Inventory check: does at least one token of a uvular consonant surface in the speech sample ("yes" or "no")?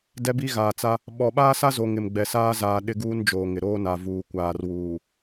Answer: no